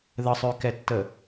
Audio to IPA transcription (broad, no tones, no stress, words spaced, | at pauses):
ðəsˤøkɛtːə